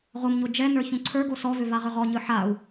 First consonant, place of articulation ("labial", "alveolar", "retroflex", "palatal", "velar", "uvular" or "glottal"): uvular